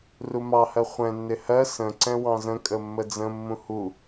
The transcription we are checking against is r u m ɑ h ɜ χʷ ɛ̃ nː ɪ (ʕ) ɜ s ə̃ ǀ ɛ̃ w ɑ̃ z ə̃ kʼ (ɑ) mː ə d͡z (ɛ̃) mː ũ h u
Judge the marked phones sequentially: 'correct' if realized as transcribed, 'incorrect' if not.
incorrect: h, incorrect: ə, incorrect: ə̃

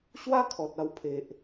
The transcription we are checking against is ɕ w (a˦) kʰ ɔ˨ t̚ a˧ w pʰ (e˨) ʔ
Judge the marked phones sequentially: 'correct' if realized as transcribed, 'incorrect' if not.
correct, correct

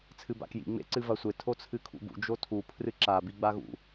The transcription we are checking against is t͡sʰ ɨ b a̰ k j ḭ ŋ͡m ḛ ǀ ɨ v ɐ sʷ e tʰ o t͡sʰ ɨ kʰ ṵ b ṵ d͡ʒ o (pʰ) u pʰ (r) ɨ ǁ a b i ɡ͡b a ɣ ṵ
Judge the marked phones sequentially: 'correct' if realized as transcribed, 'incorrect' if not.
incorrect: tʰ, correct

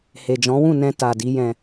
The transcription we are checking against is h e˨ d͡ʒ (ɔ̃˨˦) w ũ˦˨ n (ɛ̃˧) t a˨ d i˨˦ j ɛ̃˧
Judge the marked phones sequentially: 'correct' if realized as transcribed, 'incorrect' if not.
correct, correct

